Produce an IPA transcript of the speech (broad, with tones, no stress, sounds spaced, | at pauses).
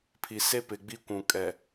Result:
pʰ i˨ s e˦ p ɪ˨ ɡ͡b i˦ kʷ ũ˨ kʼ ɛ˨